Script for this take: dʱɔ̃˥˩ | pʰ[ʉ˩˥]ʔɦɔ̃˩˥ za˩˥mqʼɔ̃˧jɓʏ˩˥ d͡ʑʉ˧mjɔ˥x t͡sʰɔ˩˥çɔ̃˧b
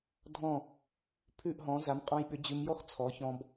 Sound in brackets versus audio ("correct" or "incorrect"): incorrect